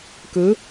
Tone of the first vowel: rising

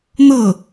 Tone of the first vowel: falling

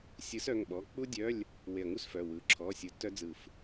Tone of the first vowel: rising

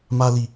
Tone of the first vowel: high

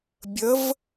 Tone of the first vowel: rising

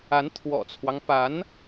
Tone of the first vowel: rising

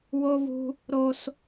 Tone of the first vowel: high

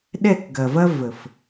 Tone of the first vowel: falling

